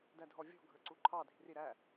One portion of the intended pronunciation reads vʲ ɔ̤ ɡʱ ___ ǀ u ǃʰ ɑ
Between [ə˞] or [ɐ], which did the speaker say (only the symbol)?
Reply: ə˞